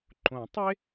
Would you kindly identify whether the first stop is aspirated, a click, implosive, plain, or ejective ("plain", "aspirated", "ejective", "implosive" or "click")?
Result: click